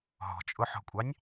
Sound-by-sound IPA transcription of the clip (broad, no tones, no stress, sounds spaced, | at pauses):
ɦ ɔ̤ t͡ʃʼ ʊ ħ ɔ̤ kʷʼ ɑ nʲ